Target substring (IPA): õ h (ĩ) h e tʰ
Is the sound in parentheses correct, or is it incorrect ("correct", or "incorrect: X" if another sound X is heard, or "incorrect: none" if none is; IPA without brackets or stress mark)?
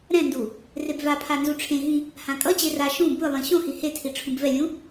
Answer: incorrect: i